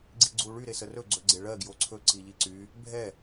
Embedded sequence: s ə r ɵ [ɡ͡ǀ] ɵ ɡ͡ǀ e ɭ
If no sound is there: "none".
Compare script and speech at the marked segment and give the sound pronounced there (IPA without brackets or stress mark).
ɡ͡ǀ